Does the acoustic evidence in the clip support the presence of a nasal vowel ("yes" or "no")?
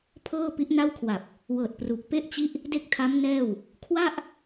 no